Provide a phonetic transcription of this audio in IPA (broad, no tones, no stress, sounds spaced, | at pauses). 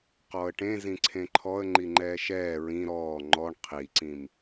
q ɔ ə̯ ʈ ẽ z ĩ ǀʰ ẽ ǃʰ ɔ ə̯ ŋ͡ǃ i ŋ͡ǃ ɛː ʃ ɛː ɹ ĩ ɾ ɔː ŋ͡ǃ ɔ ɳ qʰ i ǀ ĩ m